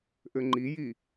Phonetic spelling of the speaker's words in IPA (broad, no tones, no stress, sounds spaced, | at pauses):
ʔ ɘ ŋ͡ǃ i j i